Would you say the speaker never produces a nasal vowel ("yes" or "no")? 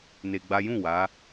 no